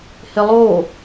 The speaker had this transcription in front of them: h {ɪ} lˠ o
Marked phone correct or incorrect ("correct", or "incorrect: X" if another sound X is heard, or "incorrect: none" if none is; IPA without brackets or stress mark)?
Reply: correct